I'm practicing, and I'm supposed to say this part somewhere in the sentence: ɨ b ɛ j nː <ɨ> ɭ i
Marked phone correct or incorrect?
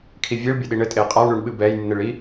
correct